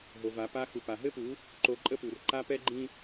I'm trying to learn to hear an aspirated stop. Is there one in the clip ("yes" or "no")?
no